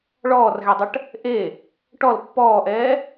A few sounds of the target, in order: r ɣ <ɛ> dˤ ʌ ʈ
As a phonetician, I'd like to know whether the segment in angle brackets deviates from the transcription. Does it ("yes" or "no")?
no